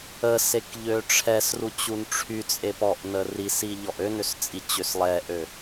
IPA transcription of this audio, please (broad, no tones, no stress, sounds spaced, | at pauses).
ə s e k ʎ ø ʈ͡ʂʰ ɛ s r u t͡ɕ u n ʈ͡ʂʰ y t͡sʼ e p ɔ ʔ n ə r i s i ʎ ɔ ʔ ø n ø s t͡sʼ i t͡ɕ ø s lˠ ɛ ʔ ø